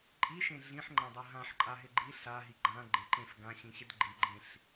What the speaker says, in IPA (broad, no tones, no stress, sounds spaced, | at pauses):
ǃʼ i ʃ ẽ ɮ ĩ ħ ŋ͡ǃ ã dˤ ɜ ɦ ã ħ ǃʼ a ɦ ɪ ɡ͡ǃ i ɬ a ɦ i ɡ͡ǃ ã ɡ͡ǃ ɪ ǃ ẽ f ɡ ã ɕ ĩ ɕ ɪ d ɡ͡ǃ i ɡ͡ǃ ẽ ɬ